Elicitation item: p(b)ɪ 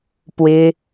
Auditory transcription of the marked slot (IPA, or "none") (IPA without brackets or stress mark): w